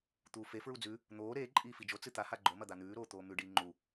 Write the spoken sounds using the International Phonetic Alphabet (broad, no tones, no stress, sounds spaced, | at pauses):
t̪ uː f e f ɹ u d͡z ʉ | n̪ oː ɾ eː ǃʼ iː f i d͡ʒ o t͡s ɨ t̪ a h a ɡ͡ǃ o m ɐ d̪ a n̪ ʉː ɾ oː t̪ oː m ʉ ɖ iː ŋ͡ǃ u